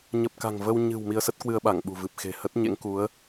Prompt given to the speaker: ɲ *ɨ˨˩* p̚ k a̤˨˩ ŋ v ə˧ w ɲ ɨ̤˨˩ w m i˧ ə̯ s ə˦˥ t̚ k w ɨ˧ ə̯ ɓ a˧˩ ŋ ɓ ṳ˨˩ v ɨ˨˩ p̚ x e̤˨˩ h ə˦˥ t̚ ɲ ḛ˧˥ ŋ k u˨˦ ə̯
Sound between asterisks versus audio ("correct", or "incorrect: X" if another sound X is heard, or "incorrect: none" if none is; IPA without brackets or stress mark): incorrect: ə˨˩